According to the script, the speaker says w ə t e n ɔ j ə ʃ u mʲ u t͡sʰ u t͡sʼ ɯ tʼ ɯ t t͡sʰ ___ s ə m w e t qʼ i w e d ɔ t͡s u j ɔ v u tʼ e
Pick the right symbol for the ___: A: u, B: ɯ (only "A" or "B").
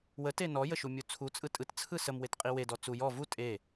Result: B